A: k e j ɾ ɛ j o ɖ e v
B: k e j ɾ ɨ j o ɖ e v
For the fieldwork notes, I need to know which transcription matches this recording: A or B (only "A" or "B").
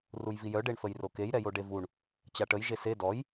A